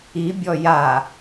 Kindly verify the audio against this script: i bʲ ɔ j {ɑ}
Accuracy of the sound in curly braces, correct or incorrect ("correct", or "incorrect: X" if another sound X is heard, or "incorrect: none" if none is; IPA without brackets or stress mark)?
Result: incorrect: a